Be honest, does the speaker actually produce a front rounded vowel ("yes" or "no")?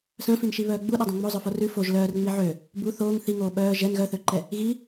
yes